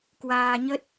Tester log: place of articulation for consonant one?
velar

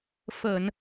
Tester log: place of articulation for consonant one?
labial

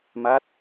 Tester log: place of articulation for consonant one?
labial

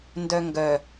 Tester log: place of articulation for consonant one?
alveolar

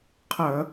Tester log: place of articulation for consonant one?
uvular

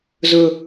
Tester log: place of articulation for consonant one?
alveolar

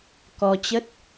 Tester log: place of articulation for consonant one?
velar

